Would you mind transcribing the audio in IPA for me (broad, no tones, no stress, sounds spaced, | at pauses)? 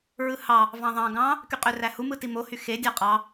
ɹ ɯ h ɑ | v ɑ̃ ðˤ ɑ̃ ɡ ɑ̃ | k y qʼ ø r æ h u m ɯ t i m o h y x e dʲ ɑ qʼ ɑ